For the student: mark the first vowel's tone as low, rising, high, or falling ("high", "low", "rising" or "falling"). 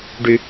low